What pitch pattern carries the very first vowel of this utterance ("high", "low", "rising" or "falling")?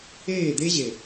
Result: falling